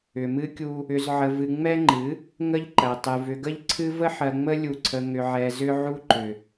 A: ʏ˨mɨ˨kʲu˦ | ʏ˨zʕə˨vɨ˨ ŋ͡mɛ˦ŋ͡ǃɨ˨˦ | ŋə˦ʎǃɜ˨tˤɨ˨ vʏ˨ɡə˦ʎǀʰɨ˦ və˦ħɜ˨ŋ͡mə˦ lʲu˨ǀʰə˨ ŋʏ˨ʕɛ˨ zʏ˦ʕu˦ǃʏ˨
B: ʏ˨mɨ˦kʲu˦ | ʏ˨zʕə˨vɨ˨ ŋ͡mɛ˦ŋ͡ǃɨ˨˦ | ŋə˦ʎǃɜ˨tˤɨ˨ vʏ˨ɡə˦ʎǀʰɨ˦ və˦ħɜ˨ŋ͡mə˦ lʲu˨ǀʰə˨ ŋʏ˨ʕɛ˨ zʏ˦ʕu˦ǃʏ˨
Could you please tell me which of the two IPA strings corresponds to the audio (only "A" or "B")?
B